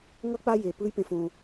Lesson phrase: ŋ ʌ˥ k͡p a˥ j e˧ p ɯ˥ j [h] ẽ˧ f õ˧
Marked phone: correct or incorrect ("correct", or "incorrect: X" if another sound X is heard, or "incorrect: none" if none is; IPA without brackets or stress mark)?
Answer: incorrect: p